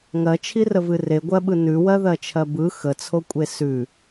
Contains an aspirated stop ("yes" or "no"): yes